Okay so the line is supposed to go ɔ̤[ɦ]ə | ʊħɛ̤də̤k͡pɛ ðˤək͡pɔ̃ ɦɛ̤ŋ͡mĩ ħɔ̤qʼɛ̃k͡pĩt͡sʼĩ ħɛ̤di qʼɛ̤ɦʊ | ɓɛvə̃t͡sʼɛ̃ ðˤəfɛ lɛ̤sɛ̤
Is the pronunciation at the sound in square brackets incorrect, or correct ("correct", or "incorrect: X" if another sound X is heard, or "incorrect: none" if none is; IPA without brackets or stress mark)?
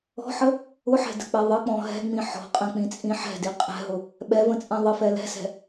incorrect: ħ